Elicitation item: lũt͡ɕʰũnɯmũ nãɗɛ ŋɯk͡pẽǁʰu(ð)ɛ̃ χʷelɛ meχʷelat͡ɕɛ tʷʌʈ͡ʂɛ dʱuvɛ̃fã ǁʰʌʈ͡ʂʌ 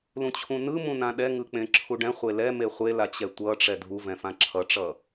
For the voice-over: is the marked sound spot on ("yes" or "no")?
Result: no